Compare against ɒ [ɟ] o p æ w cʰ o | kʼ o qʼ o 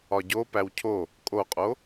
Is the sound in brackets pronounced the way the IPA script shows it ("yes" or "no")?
yes